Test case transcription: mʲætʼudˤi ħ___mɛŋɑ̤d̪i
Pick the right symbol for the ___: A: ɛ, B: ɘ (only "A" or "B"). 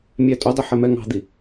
A